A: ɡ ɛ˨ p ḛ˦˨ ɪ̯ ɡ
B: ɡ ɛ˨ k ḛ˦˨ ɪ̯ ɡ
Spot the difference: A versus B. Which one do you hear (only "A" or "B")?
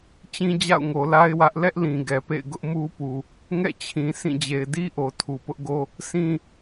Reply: A